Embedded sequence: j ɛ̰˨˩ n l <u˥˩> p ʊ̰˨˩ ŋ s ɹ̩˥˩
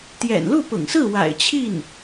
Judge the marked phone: correct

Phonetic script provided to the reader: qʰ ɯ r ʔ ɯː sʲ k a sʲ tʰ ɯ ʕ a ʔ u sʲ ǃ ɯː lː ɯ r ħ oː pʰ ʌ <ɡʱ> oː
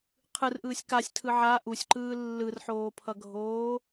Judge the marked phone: correct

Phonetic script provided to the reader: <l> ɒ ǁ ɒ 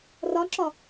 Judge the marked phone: incorrect: r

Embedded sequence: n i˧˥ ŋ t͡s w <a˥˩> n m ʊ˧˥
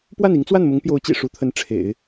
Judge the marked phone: correct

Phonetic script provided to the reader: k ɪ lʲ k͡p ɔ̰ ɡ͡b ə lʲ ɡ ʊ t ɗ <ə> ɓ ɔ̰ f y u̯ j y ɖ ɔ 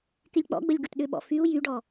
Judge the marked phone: incorrect: ʏ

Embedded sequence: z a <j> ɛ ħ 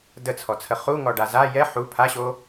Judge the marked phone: correct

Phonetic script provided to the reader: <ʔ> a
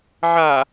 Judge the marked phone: incorrect: ʕ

